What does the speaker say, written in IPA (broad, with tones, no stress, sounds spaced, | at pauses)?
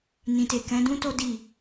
n ĩ˨ t e˨ k ɛ̃˨˦ d ũ˦ t o˦ d i˦˨